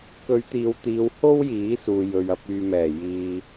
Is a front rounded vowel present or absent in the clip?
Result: present